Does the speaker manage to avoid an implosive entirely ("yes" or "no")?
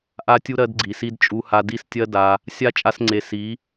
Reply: yes